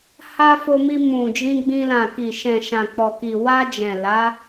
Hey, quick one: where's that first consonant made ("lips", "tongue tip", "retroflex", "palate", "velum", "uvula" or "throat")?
throat